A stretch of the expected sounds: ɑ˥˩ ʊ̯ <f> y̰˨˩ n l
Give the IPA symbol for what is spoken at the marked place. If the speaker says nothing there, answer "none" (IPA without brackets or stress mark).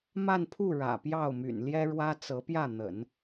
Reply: m